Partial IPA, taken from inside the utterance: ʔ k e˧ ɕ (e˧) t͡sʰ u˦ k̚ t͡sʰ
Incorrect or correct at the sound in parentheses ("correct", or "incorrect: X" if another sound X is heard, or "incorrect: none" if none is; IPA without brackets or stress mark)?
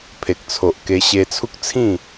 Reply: correct